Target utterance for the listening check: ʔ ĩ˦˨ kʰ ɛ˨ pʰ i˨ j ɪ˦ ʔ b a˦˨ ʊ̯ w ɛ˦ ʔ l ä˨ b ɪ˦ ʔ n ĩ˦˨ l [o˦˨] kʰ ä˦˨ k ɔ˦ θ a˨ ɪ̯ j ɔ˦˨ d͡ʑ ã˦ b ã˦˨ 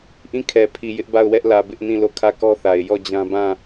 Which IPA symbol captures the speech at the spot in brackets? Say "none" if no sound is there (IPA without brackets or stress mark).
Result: o˦˨